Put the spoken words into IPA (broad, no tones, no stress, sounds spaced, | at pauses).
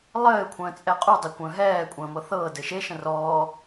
lˠ ɘː kʷʰ ə̃ː t͡sʼ ɛ qʼ u dˤ ɛ kʷ ə̃ː ɦ ɛː kʷʼ ə̃ː m ɤ θ ɤː d ɘ ʃ e ʃ ə̃ r ɔː